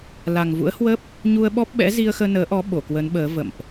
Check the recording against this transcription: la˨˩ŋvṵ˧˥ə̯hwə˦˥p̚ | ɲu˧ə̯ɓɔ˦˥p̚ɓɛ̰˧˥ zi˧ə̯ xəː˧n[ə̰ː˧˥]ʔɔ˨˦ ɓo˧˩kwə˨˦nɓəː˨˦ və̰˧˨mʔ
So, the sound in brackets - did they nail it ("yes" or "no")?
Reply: no